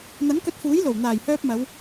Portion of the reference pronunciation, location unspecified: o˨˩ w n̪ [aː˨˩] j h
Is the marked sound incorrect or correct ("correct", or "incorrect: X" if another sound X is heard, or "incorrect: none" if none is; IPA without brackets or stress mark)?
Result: correct